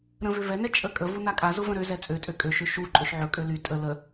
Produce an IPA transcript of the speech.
ɾ ə̃ v ø v ɛ n ɛ t͡ʃʼ ə kʼ ə v u n a kʼ a z ʊ v ə̃ ɾ ø z ɛ t͡sʼ ø tʼ ø kʼ ø ʃ ø ʃ u ǃʼ ɵ ʃ ʕ ɵ kʼ ø l y tʼ ə l ə

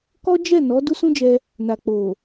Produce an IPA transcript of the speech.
k ɔ˦ d͡ʒ ɛ˦˨ n ɔ˨˦ d u˦ s ũ˦ d͡ʒ ɛ˧ | n a˨ k͡p o˨

